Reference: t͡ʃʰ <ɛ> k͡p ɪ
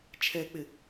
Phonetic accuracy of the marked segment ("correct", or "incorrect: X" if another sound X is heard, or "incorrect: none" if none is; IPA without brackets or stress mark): correct